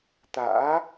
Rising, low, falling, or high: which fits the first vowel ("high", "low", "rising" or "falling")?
rising